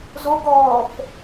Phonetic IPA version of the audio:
z o ɡ ɔː f

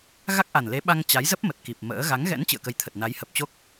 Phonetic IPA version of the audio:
ɣ a˦˥ k̚ ʔ a˨˩ n l e˨˦ ɓ a˧ ŋ t͡ɕ a˨˦ j z ə˦˥ p̚ m ə˨˩ t̚ k i˨˩ p̚ m ə̰ː˧˥ ɣ a˨˦ ŋ ɣ ɛ̰˧˥ n t͡ɕ ɨ̰˧˨ ə̯ k ə˨˦ j t̪ʰ ə˨˩ t̚ n a˨˦ j h ə˨˩ p̚ t͡ɕ o˦˥ k̚

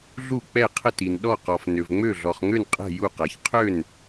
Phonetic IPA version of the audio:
ɮ u˥˩ k͡p ɛ˥˩ qʰ ə˥˩ t i˨ n ɗ ɔ˥˩ q ɔ˨ f n ø˨ v ŋ͡m ø˥˩ ɮ ɔ˨ χ ŋ ø˥˩ n qʼ ɛ̤˥˩ j u˥˩ q a˨ ç qʰ ø˥˩ n

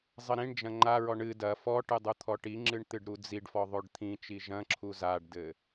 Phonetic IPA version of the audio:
zˤ ɘ ɾ ĩ ɳ d͡ʒ ɐ̃ ŋ͡ǃ a ɹ ɔ ɳ ɨ d ɐ f ɔ ʈ ɨ dˤ u t̪ʰ ɔ ʈ i ŋ͡ǁ ɨ ɳ t̪ ɨ ɖ ɾ u d͡z i ɖ f ɔ ðˤ o ɖ t̪ʰ ĩ t͡ʃ i ʒ ɐ̃ ǁʰ u z a ɖ d ɘ

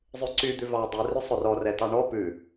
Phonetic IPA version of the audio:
zˤ ʉ ǀ y d̪ ʉ v ɑ dˤ y r ɵ sˤ ɵ r ɔ r ɛ t ɑ ɳ ɔ p ʉ

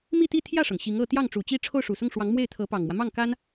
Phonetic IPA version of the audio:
m i˥˧ t̪ i˥˧ t̪ʰ j ä˥˩ ʂ ɤ˩ ŋ ɕ i˧˥ ŋ ɤ˥˧ t̪ j ɑ˥˩ ŋ ʈ͡ʂ u˨˩ t͡ɕ i˥ ʈ͡ʂʰ o˥˩ ʊ̯ ʂ u˨˩ s ʊ˥˩ ŋ ʂ w ɑ˧˥ ŋ m w e˥˩ ɪ̯ t̪ʰ ɤ˧˥ p ɑ˨˩ ŋ m w ä˦ m ɑ˥˩ ŋ k a˥ n

